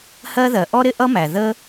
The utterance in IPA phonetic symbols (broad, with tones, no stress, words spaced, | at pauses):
hɜ˥ ðɜ˩ʔɔ˥ɾɪ˥ʔʌ˥ mæ˩ ðə˥